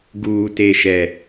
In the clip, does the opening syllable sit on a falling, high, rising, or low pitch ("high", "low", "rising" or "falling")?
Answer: low